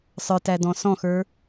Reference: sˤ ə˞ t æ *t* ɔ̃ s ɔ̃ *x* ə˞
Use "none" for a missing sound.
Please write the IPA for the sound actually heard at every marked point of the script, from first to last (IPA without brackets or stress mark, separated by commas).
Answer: d, x